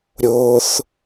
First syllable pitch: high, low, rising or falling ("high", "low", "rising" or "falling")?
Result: high